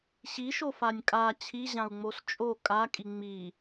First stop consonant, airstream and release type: ejective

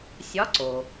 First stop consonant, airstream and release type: click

